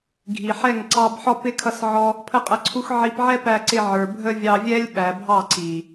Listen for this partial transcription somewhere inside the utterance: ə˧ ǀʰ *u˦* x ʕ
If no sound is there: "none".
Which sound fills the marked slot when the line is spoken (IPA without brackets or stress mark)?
u˦